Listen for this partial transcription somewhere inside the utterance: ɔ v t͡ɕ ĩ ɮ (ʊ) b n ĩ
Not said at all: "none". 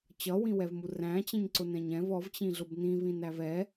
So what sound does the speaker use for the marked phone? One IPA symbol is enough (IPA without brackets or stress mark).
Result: ʊ